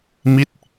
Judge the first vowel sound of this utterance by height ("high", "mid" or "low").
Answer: high